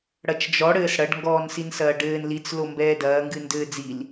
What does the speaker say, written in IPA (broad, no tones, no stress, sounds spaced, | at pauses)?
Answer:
ɽ ɐ t͡ʃ d͡ʒ ɔ ɽ ɘː s ɽ ɐ ɖ ŋ ɡ ɔː n s i n s ɐː ɖ ɘː n l i t͡s l o m b ɛː d ɐː ŋ ɡ ɨ n d ɘː d͡z i l